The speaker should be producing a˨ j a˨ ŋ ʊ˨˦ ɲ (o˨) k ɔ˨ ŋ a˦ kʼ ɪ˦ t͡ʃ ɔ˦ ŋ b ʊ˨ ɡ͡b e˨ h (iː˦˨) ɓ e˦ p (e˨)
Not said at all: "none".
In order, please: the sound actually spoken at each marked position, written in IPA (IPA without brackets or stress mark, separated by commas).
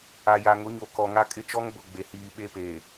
o˨, iː˨, eː˨